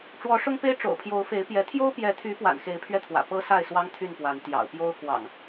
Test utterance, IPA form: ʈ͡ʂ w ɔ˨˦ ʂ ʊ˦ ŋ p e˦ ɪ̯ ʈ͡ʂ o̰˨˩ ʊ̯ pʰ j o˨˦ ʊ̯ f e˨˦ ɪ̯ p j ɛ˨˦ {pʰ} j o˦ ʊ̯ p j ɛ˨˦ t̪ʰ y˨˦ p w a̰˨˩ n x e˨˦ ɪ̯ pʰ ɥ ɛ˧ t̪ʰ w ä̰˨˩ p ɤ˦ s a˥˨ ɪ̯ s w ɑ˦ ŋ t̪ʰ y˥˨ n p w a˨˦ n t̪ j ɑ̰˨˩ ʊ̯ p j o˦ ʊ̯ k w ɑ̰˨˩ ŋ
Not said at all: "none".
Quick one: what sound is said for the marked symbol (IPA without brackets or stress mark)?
t̪ʰ